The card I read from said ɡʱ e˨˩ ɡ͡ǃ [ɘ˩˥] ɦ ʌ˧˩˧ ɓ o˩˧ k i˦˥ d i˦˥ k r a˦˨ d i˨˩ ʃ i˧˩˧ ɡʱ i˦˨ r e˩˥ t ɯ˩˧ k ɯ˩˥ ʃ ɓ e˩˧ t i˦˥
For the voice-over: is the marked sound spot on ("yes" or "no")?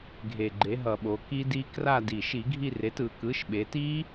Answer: no